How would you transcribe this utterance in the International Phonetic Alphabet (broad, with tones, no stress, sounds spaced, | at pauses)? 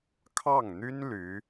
kʰ ɑ˥˩ ŋ n̪ y˥ n l y˧˥